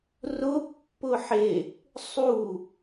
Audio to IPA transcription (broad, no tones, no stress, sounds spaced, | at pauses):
r ʊ pː ʊ ħ e | sˤ u